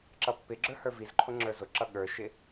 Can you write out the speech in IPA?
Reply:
ǁʌpːɪɡ͡ǁə˞ hə˞vizǃʰʊ ŋ͡ǁə˞zʊǁʌ ɠə˞ʃɪ

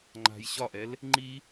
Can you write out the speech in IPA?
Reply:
ŋ͡ǃa̤j ɕɒʔɛl | ŋ͡ǃi

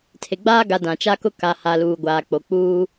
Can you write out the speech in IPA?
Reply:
tʰe˨ɡ͡baː˦ɡa˨ dã˨t͡ʃa˦kʊ˦ ka˨ha˨ luː˨ɡʷaː˨k͡po˨ k͡puː˦

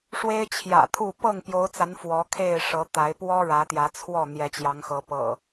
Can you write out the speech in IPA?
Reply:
ʂwe˦ɪ̯t͡ɕʰjä̰˨˩t̪ʰu˥˨ pɤ˥˨ŋpjo˨˦ʊ̯t͡sa˨˦n fwɔ˨˦ kʰe˥˨ɪ̯ʂɤ˨˦t̪a˨˦ɪ̯ pwɔ˦ ɻä˨˦t̪jä˨˦t͡sʰwɔ˥˨ n̪jɛ˨˦t͡ɕjɑ˨˦ŋxɤ˨˦ pɤ̰˨˩

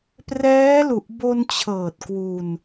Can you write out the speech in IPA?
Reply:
prɛː˦˥lu˨˩ʔ bo˧nt͡ɕʰɤː˨˩t̚ kwu˧n

